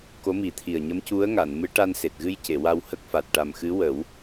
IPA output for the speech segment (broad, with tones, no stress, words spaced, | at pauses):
ko˧˥mi˨˩˦t̪ʰi˨˩ə̯ ɲə˧˥mcu˧˥ə̯ŋa˨˩˨n mɨ˧˥ʈa˧n se˨˩t̚ɣɨ˧jce˨˩˨ wa˧whə˦˥k̚fa˨˩t̚ ʈa˨˩m xɨ˧˥wə˨˩˦w